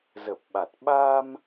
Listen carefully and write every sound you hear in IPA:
zə˨˩p̚ɓa˨˩t̚ ɓa˧m

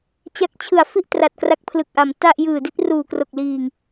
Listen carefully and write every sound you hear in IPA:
t͡ɕa˦˥k̚t͡ɕʰɯ˨˩a̯fi˥˩ʔ tra˨˩t̚kra˦˥k̚pʰlɯ˨˩k̚ʔa˩˦m ta˥˩ʔ jɯː˨˩di˥˩t̚ ruː˨˩kro˨˩k̚liː˨˩ŋ

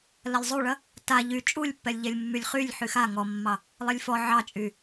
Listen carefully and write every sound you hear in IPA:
lɐlʲzˤuɭɐ | ta ʎy t͡ʃʼulʲpːɛlʲʎɛlʲmːylʲ χylʲ ħyxa ŋɔmːɑ | lˠɛlʲfɔ ʕɑt͡ʃʼy

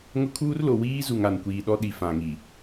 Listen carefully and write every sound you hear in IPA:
ŋʊ˦kʰuː˦rlo˨ wiː˦zu˨ŋ a˨nkʷiː˨ɗɔ˦ ɗi˨fã˨ŋi˨

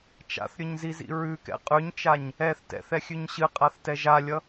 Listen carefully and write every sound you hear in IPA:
t͡ʃa̰θɾʲɵɲzizḭ ɹʉkɛ̰ qʼʉɲt͡ʃaɲ | ɛθ tɛ̰θɛxʲʉɲ ɕɨqʼaθtɛ ʒalʲʌ

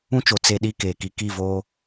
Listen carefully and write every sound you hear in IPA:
ũ˦t͡ʃo˨ t͡se˦ɗi˦ keː˨ki˦ ki˦˨voː˦

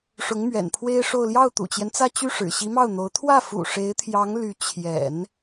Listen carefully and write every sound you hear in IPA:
ʂʊ˧˥ŋmɥɛ̰˨˩npʰwe˥ɪ̯ʂo˥˧ʊ̯ ljɑ˥˩ʊ̯t̪ṵ˨˩t͡ɕjɛ˦nt͡sä˥˧ t͡ɕy˥˩ʂɻ̩˨˩ ɕi˧˥mɑ˥˩ʊ̯n̪o˧˥ʊ̯ t̪ʰwä˥˩fṵ˨˩ ʂe˧˥ɪ̯t̪ʰjɑ˧˥ŋ ly˧˥ t͡ɕʰjɛ̰˨˩˦n

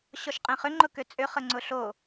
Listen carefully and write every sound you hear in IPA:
ɕɔʃqʼẽχʏ ŋ͡ǃʊkʏt͡sʼʏ χəŋ͡ǀʊɬo

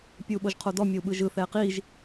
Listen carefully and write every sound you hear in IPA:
pʲɯu̯ɓoʒqʰodɔ mʲəu̯ɓɯʒɯ θɛqiʒ

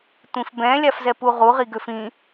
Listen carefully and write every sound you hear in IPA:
tʷĩfbɛ̃ lʲafzɛpuʁu ʁiɡøfĩ

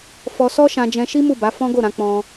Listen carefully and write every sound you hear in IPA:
fɔ˧sɔ˦ʃã˧d͡ʒɛ̃˧ ʃi˦mu˦˨ba˨˦ fɔ̃˦ɡo˦˨ɾã˨˦ k͡pɔ̃˧

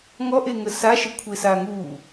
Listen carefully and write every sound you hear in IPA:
ŋɔʔeŋə saʃəkʷʰesa ŋu

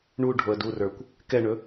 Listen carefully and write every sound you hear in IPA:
ɳuɖʱoə̯ durə˞kʷ | kɛɳɵ

